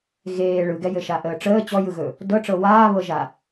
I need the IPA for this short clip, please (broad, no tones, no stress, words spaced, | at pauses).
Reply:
ɣeː ɭɯɡɛjɘ ʃaʔəːʈ͡ʂəː t͡ɕɔjɯɣɵ | dɤʈ͡ʂɤ waːβɤʒa